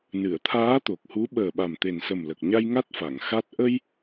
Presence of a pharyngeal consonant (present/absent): absent